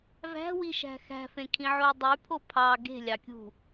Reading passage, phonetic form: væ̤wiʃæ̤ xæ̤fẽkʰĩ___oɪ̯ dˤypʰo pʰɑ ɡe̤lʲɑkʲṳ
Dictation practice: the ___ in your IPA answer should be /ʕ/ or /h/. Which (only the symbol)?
ʕ